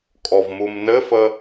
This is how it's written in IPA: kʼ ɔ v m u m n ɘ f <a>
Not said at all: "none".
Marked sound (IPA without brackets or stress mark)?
ə